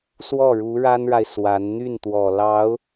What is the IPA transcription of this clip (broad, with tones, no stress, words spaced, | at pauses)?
swɔ˥˩ɻu˧˥ɻa˥nɻa˨ɪ̯ swa˧˥n n̪y˥˩nt̪wɔ˨˩lɑ˧˥ʊ̯